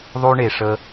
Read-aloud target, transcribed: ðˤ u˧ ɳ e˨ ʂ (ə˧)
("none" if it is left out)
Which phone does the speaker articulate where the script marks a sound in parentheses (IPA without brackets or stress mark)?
ə˧